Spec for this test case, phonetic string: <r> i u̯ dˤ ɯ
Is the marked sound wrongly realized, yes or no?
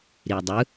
yes